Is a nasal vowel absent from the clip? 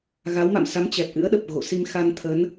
yes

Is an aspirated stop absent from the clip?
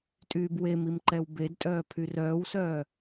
no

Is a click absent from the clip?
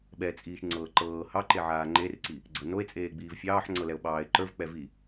no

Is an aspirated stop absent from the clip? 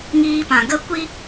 yes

